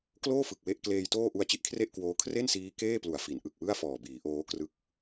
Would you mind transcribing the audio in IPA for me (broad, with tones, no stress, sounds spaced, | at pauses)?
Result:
k l oː˥˩ f ɯ˨˩ k̚ w e˦˥ ʔ k l eː˧ j t oː˥˩ ʔ u˧ a̯ t͡ɕ i˦˥ ʔ kʰ r e˥˩ ʔ k w oː˦˥ kʰ r e˥˩ n s iː˦˥ k eː˥˩ p l u˨˩ a̯ f i˩˦ n ʔ ɯ˨˩ k̚ w ɯ˥˩ a̯ f ɔː˨˩ b iː˩˦ ʔ oː˦˥ k r ɯ˦˥ k̚